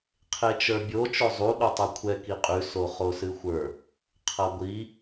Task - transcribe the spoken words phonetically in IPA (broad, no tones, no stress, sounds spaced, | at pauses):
qʰ e t͡ʃ ə˞ bʲ o t͡ʃ o zˤ u ɗ u tˤ ɛ kʷʰ ɛ k i qʼ ʉ s o χ o s ɨ xʷ ə˞ | qʰ ɐ ɡʷ i